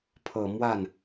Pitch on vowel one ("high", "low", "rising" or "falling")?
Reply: low